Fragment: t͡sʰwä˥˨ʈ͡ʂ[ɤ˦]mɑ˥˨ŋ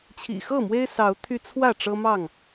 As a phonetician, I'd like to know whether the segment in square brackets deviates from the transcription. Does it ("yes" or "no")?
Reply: no